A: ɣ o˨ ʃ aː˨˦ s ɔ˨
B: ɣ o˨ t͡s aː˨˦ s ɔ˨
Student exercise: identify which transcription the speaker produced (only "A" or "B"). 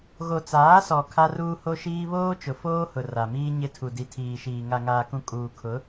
B